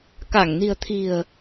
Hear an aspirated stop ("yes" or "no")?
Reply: yes